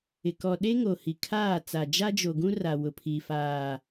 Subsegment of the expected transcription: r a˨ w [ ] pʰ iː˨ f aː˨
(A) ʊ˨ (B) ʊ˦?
A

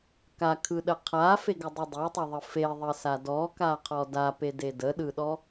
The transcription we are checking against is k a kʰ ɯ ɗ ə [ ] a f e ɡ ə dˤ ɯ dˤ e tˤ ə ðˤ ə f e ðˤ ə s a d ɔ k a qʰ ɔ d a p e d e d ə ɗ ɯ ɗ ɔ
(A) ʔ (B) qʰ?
B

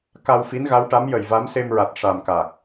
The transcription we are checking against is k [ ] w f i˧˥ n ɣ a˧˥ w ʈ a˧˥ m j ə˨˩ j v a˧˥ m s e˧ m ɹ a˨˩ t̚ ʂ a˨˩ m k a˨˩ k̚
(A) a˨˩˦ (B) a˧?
B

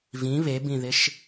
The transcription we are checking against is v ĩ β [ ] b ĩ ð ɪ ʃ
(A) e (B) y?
A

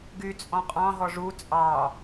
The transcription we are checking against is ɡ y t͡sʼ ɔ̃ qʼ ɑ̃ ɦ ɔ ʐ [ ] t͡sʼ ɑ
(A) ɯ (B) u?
B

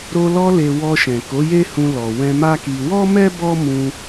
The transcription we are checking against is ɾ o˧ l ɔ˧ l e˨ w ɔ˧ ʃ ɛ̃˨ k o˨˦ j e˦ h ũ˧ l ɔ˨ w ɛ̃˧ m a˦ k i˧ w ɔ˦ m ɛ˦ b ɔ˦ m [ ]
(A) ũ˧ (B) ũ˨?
A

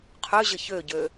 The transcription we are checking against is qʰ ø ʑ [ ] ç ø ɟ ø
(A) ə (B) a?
A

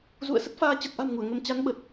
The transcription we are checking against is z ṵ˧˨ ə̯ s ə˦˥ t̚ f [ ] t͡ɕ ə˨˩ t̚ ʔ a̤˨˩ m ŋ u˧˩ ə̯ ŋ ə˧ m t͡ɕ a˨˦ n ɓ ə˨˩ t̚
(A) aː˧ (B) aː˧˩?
A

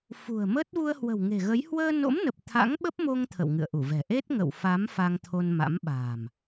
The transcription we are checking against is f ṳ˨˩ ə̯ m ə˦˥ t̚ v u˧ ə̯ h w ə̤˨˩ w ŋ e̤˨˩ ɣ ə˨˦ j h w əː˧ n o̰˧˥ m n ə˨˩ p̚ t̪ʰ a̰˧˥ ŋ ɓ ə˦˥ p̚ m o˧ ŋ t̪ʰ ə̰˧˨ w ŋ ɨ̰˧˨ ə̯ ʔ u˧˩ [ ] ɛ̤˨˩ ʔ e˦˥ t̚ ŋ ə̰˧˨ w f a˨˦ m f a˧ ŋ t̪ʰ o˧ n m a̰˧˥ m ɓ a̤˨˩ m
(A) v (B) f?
A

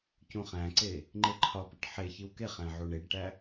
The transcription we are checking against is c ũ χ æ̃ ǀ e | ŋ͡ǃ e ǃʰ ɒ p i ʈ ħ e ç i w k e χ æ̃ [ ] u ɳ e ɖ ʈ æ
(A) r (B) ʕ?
B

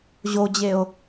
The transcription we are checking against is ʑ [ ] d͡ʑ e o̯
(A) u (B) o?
B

